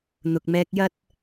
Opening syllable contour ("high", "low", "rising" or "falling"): low